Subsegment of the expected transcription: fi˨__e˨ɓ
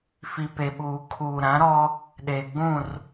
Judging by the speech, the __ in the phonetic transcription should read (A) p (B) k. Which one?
A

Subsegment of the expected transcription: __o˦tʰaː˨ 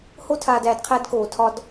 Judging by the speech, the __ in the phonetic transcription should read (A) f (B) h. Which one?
B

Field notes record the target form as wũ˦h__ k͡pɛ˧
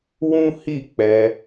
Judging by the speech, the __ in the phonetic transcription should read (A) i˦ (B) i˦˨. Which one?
B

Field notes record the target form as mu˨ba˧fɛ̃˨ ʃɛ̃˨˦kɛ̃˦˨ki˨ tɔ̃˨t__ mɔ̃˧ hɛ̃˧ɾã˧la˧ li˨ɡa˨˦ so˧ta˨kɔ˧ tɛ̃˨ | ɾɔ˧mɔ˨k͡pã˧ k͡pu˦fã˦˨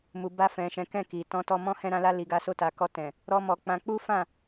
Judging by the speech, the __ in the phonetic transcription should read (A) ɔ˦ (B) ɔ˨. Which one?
B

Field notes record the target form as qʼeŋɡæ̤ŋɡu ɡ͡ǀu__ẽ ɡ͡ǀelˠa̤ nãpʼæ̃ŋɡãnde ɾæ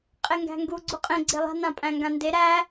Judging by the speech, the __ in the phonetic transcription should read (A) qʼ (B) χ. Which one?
A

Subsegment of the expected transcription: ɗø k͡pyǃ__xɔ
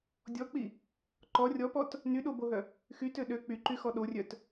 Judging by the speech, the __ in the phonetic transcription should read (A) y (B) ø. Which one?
A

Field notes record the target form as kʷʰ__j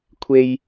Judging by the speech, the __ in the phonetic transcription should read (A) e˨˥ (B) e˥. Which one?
B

